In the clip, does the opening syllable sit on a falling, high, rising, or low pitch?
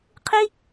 high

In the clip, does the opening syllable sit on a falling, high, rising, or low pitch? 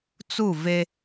falling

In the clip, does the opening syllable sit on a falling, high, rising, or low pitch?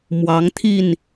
rising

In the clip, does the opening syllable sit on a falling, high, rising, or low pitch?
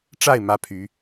falling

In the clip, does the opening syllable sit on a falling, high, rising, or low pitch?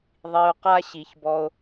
low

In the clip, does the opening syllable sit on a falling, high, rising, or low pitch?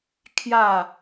falling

